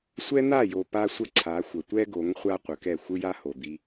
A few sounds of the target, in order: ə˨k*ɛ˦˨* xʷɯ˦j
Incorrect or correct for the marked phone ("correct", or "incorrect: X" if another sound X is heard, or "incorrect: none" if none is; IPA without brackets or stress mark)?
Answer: correct